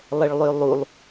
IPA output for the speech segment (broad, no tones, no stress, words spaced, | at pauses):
lˠɛɭlˠølˠulˠ